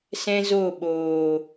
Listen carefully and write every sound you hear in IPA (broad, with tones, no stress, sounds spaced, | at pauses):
s ɛ̃˦ z o˦˨ ɓ oː˨